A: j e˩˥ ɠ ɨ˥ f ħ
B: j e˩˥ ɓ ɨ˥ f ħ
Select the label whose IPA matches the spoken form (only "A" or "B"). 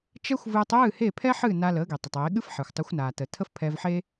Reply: A